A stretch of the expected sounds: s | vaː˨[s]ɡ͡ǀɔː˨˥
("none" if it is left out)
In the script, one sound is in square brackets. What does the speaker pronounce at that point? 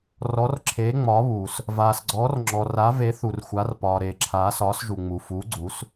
s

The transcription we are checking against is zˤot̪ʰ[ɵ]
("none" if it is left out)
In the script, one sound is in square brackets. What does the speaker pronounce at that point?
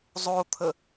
ə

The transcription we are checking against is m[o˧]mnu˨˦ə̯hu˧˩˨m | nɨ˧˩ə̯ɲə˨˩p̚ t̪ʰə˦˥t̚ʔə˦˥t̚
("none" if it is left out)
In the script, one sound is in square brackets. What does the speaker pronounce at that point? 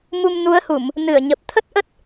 u˧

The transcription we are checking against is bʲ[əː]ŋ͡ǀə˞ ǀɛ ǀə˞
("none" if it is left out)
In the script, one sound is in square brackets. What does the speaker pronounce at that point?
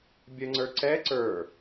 ə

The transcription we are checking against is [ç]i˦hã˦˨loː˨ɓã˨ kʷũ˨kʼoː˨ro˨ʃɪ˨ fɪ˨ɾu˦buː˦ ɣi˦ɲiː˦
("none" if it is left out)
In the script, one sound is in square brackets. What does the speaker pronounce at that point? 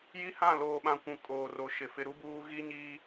j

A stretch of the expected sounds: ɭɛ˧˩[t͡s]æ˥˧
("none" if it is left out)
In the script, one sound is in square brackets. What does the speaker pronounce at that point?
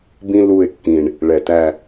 t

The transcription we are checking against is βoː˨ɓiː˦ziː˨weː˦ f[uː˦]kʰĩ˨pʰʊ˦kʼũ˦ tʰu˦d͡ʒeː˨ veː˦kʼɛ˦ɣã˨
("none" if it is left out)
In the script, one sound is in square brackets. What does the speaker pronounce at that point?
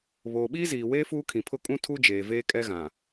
uː˦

